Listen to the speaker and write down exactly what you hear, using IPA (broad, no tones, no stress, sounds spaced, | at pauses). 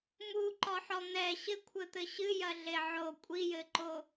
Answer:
m u ǃ ɔ ħ ɔ n̪ ɛ ɕ ɘ kʷʰ ɘ t̪ ɘ ɕ ɨ j ɐ ɮ e ʕ o kʷʼ i j ɘ ǃ o